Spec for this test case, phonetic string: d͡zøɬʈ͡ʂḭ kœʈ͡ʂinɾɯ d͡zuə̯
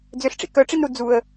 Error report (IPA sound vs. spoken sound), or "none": ɯ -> u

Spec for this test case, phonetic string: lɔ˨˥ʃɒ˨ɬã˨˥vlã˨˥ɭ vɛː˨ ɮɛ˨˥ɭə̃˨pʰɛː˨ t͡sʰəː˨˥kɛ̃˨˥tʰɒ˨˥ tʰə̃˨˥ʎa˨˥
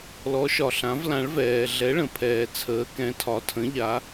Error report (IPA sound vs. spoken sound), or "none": none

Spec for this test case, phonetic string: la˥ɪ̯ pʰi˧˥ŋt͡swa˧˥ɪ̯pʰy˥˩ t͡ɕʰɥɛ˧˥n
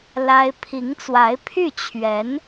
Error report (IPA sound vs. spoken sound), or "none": none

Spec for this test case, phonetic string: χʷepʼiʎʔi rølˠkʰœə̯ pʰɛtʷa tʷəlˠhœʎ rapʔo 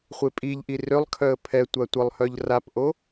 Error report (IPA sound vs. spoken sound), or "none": none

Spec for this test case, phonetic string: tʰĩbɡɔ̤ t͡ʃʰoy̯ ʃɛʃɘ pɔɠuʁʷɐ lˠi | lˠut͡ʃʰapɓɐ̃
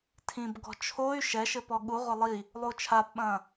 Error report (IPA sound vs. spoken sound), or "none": none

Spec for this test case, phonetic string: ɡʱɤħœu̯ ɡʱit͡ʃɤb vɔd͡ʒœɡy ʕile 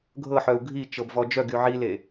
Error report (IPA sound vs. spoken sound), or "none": none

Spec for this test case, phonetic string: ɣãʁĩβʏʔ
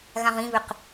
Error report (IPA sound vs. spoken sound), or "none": ʔ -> q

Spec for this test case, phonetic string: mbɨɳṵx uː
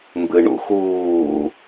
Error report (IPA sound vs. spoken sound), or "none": none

